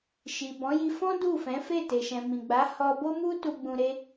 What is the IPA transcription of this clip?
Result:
ʃ i˨ b ɔ̃˨˦ j i˧ f ɔ̃˦ d u˦˨ f ɛ̃˨˦ f e˦˨ t e˨ ʃ ɛ̃˨ m ĩ˨ ɡ͡b a˨˦ h ɔ˧ b o˦ m u˦ t u˧ ɡ͡b ũ˧ ɾ e˦

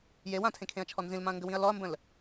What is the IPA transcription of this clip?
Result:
j e w ã tʰ ẽ kʰ ẽ ɐ̯ t͡ʃʰ ɔ n z ĩ l m ã ɐ̯ ŋ ɡ ə w ĩ ɐ̯ l ɔ ɐ̯ m b ə̃ l

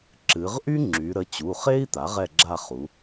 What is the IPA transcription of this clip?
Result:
ǁ ɨ˩˧ ʁ ʔ y˥ ŋ͡ǁ y˩˧ ɾ ə˩˧˩ t͡ɕ u˩˧˩ χ e˥ i̯ t̪ a˩˥ ʁ ɛ˦˨ ɡ͡ǁ a˦˨ χ u˩˧

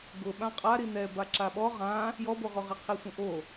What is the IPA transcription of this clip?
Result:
ɡ ʊ ɓ ã qʼ a ɾ i n ɛ b a ǁ a ɓ ɔ ʁ ã | j ɔ b o ʁ o ʁ i qʰ i sʷ ĩ ʔ o

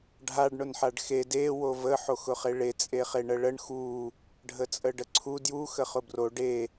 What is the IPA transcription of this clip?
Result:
ɖʱ a ɖ ɳ ʊ n ħ a ɖ x e d e w o v ə ħ o x ʊ χ e ɭ e t͡sʼ e χ e ɳ ə ɭ ə ɳ x u | ɖʱ ə t͡sʼ ə ɖ ə ǀʰ u d j u x ə χ ʊ b r o ɖ e

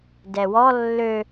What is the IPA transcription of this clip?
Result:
d ɛ w ɔ lː ø

